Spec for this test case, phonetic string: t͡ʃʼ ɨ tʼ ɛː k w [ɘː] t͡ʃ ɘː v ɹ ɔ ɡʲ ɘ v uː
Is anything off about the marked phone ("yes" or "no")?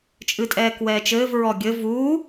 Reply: yes